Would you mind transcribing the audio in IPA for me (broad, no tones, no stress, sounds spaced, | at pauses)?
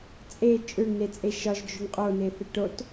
t͡sʼ e t͡ʃʼ ø ɳ n e t͡sʼ e ʃ ɒ ʒ d͡ʒ ø ɳ qʼ o n e θ ɛ ʈ o t